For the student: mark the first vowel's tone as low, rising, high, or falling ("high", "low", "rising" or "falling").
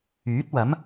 rising